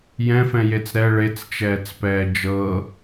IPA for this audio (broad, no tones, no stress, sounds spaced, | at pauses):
j ɛ̃ f ɛ̃ j e t͡s ɾ ɛ ɭ e t͡s t͡ʃ ɛː t͡s p ɛː d͡ʒ ɤ